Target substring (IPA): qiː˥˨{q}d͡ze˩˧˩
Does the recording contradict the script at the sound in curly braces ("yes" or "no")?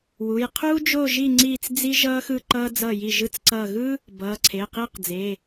no